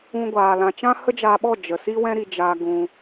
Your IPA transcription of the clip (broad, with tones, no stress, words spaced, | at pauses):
ũ˦ɡʷaː˧lã˧ t͡ʃã˦hə˦d͡ʒaː˧ɓɔ˦˨ d͡ʒə˨si˦wɛ̃˦ ɾi˧d͡ʒaː˧ ɡũ˧